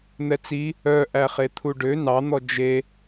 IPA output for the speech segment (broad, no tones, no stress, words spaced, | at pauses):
n̪ɛt͡si | œ ʔæχet̪ʰuɖø nɑn̪ɔ d͡ʒe